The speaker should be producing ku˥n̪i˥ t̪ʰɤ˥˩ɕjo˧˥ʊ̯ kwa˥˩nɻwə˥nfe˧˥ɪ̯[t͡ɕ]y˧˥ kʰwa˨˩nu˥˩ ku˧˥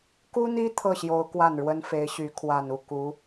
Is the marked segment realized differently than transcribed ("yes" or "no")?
yes